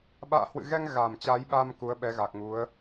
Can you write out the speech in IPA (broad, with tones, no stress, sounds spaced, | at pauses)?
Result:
ɓ a̰ː˧˨ h w ɨ̰˧˨ ɣ ɛ˧ ŋ ɣ a˨˩ m t͡ɕ a˨˦ j ɓ a˧ m k u˨˦ ə̯ ɓ ɛ˨˦ ɣ a˨˩ k̚ ŋ u˨˦ ə̯